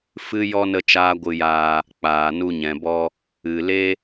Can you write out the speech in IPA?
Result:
fɨ˦jɔ˦ nə˦t͡ʃaː˦ɡʷɨ˧jaː˧ | k͡paː˨nu˧ɲɛ̃˨bɔ˧ | ɨ˨ le˦

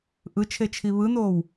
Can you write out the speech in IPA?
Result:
ʔɯt͡ʃʰe t͡ʃʰiβɯnoːw

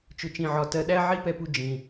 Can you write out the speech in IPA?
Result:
t͡ʃʊ˨t͡ʃĩ˨ʕɒ˨ tɜ˨ɗæ˦ ʕi˦pɛ˧pu˧ d͡ʒĩ˨

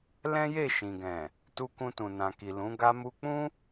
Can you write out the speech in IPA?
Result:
lɛ̃˦je˦˨ ʃĩ˨ɡɛ̃˨ | tu˧kũ˧tũ˨ nã˨ki˨lũ˨˦ ɡa˧mu˧k͡pũ˦

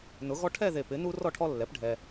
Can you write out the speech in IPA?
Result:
nʊ˩˥ɣɔ˦ ʈʰɛ˥˨ðe˨ pɪ˩˥nu˦ rɔ˥˨ʈʰɔ˦lːɛ˩˥pɖʱɛ˨

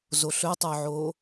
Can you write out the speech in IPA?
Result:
zoɬɵtˤœʕo

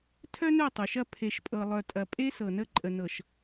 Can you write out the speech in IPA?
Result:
tʰœ˦nœ˦˨tˤo˨ʃɐ˦˨ pʰe˨ʃpʼɤ˨lˠœ˨ tʼɐ˨pʼe˦ sɤ˨nə˦ ǃʼə˨nɤ˨ʃ

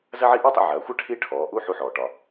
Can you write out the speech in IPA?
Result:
zɐ˥ʕi˥ ʔɔ˥tˤə̰˧ ʕɐː˩˧xʷɐ˥ ʈʰi˥ʈʰɔː˩˧ʔu˥ ħu˧ħɔː˩ʈɒ˩

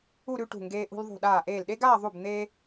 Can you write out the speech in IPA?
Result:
u˥˧ɾʉ˥˧ʈṳ˧˩ ŋɡeː˧ʔṳ˧lðˤṳ˧˩ ɗaː˧˩ʔeː˧˩lɗe˥ɡaː˥˧ ðˤu˧˩bn̪eː˧

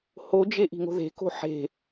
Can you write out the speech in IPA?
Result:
hod͡ʒe ʔi̤ŋo̤ðe̤ ko̤ħe̤

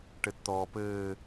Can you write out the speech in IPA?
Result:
ʈɘtt̪ɔːpɘː

